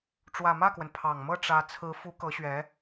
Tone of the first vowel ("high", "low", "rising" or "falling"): low